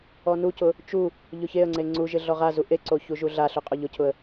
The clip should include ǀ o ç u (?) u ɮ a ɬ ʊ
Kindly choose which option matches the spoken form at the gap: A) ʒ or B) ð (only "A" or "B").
A